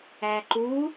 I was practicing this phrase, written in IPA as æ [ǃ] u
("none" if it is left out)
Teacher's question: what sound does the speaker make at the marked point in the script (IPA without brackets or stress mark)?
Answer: ǃ